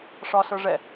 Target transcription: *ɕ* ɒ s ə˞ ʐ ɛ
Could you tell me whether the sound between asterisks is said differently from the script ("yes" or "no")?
yes